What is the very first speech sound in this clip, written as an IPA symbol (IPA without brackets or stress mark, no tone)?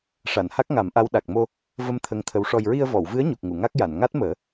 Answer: ʂ